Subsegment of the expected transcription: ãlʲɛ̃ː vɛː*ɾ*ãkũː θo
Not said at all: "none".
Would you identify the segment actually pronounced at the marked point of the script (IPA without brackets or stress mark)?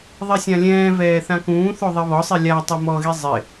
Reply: θ